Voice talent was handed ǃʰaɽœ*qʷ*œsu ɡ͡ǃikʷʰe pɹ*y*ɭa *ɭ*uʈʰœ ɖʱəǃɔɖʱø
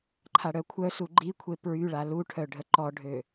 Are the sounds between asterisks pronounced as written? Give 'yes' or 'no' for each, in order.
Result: no, yes, no

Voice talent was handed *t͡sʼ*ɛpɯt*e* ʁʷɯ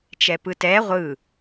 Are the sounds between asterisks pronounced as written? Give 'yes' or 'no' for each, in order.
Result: no, no

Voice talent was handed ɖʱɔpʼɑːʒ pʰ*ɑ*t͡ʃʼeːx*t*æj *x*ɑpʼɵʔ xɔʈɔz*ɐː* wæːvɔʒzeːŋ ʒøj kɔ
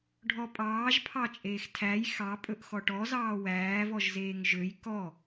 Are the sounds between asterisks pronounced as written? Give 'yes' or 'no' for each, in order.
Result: yes, no, yes, no

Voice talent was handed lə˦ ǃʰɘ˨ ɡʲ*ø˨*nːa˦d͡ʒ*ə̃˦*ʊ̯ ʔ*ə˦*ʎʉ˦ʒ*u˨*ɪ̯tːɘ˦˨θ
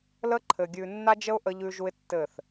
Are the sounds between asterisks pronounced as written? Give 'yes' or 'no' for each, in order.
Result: no, no, yes, no

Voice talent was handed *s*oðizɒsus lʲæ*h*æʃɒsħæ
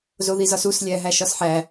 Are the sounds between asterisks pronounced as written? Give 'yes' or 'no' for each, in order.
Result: no, no

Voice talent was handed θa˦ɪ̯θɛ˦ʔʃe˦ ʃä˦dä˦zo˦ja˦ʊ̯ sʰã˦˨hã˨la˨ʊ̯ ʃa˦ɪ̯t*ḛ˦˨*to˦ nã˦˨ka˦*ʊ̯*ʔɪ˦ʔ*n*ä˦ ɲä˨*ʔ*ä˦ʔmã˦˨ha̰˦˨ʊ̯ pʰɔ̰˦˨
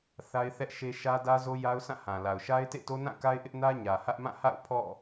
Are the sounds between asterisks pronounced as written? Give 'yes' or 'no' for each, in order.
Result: yes, no, yes, no

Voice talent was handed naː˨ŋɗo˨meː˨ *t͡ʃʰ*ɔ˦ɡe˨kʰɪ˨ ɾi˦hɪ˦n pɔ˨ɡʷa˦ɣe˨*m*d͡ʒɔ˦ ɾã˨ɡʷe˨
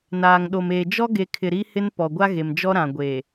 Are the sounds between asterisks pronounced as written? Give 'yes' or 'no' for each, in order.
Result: no, yes

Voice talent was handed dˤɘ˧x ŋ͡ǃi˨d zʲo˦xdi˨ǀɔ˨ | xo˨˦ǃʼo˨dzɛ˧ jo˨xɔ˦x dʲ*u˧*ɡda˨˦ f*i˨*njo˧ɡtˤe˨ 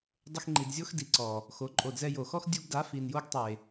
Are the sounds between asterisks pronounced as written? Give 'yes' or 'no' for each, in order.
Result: yes, yes

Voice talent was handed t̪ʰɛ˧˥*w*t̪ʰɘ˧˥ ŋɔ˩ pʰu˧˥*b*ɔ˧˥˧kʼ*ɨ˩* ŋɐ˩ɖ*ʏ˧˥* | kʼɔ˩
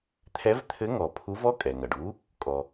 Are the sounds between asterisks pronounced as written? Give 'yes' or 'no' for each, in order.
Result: no, no, no, no

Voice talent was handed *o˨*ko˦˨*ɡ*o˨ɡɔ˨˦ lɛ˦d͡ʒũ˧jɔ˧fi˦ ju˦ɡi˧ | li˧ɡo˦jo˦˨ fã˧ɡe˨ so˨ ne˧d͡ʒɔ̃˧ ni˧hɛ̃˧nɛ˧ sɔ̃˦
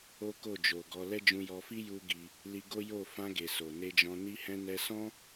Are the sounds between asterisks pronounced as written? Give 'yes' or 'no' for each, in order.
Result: no, no

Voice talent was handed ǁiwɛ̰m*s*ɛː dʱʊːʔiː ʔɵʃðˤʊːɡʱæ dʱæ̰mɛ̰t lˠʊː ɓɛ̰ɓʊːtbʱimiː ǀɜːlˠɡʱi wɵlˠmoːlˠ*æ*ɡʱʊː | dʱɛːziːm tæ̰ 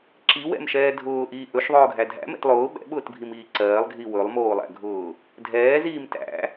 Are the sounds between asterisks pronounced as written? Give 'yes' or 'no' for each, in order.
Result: no, no

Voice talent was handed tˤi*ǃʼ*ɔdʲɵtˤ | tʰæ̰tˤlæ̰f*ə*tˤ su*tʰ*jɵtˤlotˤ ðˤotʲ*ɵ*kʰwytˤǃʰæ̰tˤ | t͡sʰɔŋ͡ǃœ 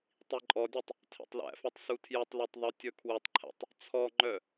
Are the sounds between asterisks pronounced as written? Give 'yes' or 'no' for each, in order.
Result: yes, no, yes, yes

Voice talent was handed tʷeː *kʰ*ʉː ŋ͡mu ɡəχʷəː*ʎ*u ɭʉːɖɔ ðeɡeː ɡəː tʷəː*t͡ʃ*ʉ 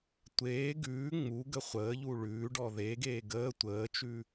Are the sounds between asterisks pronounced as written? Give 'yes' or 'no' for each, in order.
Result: no, yes, yes

